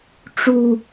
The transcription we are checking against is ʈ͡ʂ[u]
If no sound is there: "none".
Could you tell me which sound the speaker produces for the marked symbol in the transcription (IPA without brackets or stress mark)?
u